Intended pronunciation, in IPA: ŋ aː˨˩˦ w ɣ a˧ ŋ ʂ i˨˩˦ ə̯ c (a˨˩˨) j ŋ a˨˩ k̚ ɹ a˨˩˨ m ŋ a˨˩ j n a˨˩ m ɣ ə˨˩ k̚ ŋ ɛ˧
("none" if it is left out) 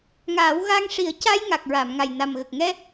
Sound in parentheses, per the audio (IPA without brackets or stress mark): a˧